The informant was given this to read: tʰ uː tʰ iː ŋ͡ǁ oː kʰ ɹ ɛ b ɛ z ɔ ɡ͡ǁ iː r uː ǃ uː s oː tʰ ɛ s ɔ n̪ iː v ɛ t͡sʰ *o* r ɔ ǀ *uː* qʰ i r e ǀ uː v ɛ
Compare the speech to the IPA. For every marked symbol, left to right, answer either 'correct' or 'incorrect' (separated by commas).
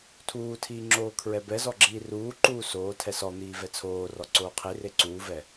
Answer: incorrect, incorrect